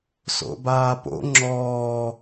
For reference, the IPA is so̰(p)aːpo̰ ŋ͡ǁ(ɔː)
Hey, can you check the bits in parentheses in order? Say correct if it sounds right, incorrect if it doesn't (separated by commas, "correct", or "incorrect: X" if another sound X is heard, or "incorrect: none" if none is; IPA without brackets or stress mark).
incorrect: b, correct